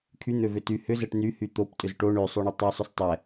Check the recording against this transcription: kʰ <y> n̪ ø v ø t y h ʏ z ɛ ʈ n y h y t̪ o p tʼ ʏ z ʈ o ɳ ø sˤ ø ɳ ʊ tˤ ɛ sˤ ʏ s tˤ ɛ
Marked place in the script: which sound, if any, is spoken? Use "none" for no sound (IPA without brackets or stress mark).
y